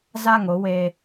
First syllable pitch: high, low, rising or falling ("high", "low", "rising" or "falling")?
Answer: falling